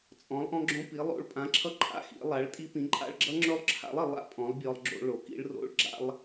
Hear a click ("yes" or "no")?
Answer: yes